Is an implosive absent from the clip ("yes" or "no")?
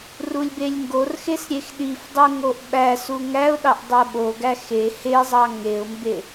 no